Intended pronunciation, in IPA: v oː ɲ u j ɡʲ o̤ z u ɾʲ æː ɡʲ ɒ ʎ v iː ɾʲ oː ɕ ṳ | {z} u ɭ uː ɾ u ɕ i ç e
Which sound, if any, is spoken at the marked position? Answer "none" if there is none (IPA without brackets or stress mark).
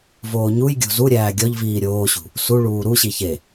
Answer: s